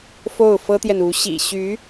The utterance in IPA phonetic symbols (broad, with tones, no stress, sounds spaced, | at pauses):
f o˥˩ ʊ̯ f ɤ˥ t̪ j ɛ˨ n u˧˥ ɕ ḭ˨˩ ɕ y˧˥